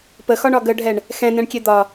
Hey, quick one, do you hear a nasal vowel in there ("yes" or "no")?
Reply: yes